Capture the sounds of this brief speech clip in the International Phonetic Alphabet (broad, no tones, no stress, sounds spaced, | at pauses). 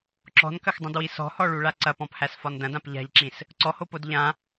ǁ ɔ̤ n k ɐ x dˤ ɐ̃ d w i s ɔ̤ h ɔ ɭ u ɭ a ǀ ɐ p ɔ̃ p h æ s f ɒ n d ɐ̃ d ã p ʎ a̤ ʎ ǁ ĩ s | ǀ ɔ h o p o d ʎ ã